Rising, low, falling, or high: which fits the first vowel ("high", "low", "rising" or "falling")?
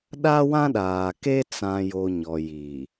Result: high